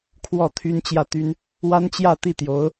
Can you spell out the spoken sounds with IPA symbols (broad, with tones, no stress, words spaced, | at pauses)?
kʰwɔ˥˩t̪ʰy˥nt͡ɕjä˥˩t̪y˥n | wa˥nt͡ɕjä˥˧t̪i˥˩t̪jo˧˥ʊ̯